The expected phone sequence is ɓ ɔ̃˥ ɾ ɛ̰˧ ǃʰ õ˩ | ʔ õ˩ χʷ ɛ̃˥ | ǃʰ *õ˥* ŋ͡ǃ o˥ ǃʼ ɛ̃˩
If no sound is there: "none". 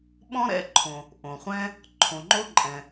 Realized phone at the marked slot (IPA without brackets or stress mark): õ˩